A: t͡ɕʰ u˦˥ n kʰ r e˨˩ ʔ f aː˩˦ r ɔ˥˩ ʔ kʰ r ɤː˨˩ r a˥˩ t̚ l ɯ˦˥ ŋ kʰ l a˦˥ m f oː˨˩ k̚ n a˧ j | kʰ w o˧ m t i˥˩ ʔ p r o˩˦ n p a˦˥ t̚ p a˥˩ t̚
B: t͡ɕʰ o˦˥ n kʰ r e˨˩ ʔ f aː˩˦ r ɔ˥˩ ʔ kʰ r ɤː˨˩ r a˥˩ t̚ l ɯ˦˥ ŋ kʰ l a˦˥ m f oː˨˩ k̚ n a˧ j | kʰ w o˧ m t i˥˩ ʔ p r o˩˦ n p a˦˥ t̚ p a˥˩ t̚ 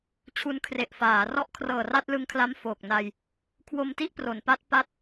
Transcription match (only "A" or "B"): A